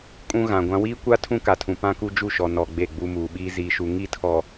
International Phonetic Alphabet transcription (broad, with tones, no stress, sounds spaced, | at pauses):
kʼ ũ˦ ɣ ã˨ ɡʷ ã˦ w iː˦ kʷ a˦ tʰ ũ˦ k a˨ tʰ ũ˨ p ã˦ k u˦ d͡ʒ u˦˨ ʃ ɔ˨ n ɔ˨ ɡ͡b e˦˨ ɡ͡b u˦ m uː˨ ɓ iː˦ z iː˨ ʃ u˨ ŋ i˦˨ tʰ ɔ˨